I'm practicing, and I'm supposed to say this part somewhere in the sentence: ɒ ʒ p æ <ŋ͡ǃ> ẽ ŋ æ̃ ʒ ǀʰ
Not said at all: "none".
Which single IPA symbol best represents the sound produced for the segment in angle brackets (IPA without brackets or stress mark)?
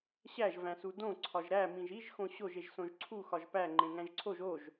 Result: ŋ͡ǃ